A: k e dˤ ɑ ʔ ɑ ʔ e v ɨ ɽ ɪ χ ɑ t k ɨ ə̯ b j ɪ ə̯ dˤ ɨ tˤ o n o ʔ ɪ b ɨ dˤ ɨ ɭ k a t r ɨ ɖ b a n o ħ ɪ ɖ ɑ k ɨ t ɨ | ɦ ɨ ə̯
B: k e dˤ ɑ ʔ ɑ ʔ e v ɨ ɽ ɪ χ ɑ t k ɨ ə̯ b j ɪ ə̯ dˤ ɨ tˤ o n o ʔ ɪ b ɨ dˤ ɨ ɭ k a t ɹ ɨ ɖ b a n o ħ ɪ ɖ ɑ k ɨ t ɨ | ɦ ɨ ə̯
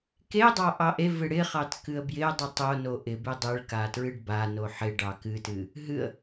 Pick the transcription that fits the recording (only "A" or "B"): B